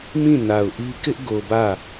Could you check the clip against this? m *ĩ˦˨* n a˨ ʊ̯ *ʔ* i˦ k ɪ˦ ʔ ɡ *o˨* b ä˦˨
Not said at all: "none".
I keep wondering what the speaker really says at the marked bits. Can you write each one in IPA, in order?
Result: ĩ˦˨, ʔ, o˨

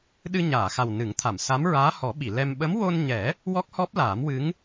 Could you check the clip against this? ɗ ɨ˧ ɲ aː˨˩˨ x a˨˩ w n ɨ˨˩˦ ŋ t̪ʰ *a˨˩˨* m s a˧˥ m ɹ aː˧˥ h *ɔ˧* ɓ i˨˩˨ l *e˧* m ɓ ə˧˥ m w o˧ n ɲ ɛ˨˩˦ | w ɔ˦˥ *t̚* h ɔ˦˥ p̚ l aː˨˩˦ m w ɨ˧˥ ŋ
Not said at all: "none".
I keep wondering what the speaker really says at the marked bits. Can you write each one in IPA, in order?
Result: a˨˩˨, ɔ˨˩˦, ɛ˧, k̚

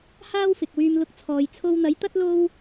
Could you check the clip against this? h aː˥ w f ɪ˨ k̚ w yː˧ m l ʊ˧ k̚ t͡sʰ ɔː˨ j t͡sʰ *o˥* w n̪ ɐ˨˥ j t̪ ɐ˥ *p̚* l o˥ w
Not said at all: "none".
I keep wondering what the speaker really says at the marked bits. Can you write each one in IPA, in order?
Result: o˧, t̚

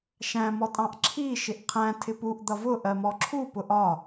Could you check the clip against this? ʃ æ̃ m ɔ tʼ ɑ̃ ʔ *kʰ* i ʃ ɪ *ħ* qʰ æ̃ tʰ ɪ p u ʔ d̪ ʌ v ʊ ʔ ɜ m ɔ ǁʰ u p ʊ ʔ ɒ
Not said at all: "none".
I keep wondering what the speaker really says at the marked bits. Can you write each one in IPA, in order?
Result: ǁʰ, ʔ

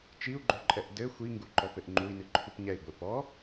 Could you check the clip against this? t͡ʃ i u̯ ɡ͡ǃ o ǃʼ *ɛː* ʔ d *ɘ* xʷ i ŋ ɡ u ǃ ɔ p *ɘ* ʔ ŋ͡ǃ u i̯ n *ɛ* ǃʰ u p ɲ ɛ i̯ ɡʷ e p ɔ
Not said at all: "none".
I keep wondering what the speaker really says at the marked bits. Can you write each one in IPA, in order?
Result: ɛ, ɘ, ɘ, ɨ

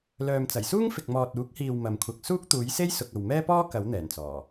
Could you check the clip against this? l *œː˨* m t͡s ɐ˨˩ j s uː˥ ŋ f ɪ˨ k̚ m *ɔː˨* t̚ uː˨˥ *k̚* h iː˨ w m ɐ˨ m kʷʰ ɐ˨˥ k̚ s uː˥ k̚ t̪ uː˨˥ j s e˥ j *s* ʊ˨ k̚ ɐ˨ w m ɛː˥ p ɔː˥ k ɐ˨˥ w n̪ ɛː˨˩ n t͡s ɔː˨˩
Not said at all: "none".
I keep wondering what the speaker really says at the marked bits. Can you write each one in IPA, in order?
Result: œː˨, ɔː˨, k̚, s

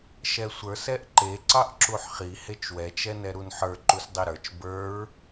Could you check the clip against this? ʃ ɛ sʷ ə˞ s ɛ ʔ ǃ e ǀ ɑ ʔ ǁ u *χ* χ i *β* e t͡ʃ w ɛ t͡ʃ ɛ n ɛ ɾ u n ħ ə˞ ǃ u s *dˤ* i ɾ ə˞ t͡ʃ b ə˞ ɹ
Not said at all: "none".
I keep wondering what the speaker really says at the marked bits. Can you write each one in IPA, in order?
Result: ħ, h, dˤ

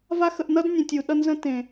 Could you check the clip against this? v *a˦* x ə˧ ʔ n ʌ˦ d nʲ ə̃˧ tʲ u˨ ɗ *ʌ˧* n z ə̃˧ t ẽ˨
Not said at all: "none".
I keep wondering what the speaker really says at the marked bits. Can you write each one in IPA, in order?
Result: a˦, ʌ˧

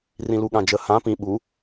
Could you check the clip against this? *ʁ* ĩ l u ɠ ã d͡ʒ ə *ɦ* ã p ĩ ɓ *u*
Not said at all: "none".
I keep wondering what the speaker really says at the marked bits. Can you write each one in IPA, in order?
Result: r, h, u

